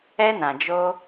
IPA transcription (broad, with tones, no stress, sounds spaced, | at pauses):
ɛ˦ n ã˨ d͡ʒ o˦